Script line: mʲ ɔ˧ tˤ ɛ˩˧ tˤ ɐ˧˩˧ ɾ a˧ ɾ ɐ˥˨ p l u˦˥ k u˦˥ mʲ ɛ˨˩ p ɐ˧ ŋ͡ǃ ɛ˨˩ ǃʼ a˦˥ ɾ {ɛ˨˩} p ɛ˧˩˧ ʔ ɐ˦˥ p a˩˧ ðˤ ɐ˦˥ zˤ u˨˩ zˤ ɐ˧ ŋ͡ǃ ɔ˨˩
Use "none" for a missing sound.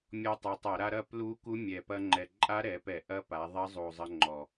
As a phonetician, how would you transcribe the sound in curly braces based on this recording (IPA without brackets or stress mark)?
ɛ˩˧